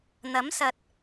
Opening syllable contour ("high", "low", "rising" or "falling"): rising